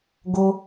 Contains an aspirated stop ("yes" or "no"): no